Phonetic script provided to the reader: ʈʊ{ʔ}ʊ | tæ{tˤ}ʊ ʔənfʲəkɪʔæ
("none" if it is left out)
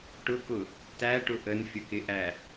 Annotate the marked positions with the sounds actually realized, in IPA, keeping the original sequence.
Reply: k, ʈ

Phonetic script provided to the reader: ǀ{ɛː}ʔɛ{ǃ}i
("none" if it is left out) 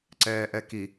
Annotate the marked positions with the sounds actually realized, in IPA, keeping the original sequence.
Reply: ɛː, k

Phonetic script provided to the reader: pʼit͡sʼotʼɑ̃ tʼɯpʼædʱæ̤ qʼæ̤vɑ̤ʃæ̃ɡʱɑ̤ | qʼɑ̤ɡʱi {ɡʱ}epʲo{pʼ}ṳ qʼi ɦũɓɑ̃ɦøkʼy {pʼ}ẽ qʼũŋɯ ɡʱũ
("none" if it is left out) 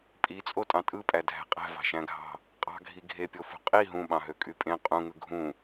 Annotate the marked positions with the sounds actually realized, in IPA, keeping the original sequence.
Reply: ɡʱ, f, pʼ

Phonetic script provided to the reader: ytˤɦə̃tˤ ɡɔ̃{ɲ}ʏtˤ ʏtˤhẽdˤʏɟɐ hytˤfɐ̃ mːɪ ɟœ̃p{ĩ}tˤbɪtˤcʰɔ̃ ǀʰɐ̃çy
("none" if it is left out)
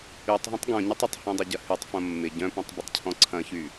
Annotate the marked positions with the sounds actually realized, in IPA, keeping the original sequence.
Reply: ɲ, ẽ

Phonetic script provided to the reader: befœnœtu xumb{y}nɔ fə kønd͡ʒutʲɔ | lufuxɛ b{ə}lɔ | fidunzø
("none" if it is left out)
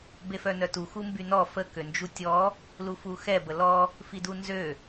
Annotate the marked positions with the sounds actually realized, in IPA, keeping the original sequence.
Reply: y, ə

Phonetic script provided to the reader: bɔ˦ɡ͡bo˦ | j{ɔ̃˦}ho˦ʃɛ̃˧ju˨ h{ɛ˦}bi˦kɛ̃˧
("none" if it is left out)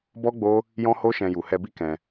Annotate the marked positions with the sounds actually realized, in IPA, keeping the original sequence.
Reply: ɔ̃˦, ɛ˧

